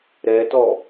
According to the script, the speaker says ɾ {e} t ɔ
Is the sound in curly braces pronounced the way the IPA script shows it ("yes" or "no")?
no